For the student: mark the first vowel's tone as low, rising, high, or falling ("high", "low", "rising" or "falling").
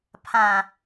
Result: low